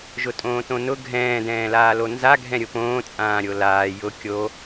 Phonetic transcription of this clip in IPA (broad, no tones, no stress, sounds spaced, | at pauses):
ʒ ʊ tʼ õː t õ n ʊ ɡʱ ɛ̃ː d ɛ̃ː l aː l o n z a ɡʱ ɛ̃ ɾʲ ʊ p õː t͡sʼ ãː ɾʲ o l aː j ʊ kʲ o